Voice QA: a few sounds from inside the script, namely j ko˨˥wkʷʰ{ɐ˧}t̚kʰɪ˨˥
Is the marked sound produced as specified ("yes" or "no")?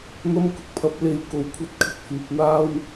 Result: yes